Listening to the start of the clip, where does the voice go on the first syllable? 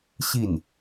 falling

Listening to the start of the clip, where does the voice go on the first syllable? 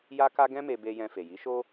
high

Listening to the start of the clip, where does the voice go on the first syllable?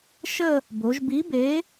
falling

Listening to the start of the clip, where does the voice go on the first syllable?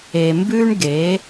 low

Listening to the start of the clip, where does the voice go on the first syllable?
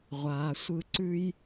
low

